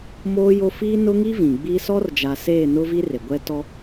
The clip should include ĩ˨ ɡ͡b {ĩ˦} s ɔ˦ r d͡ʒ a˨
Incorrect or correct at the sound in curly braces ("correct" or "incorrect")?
incorrect